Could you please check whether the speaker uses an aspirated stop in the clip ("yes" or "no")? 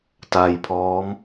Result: yes